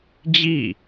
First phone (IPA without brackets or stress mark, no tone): d͡ʑ